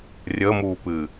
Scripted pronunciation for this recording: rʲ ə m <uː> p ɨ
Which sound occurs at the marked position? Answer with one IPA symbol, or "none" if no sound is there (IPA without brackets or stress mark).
uː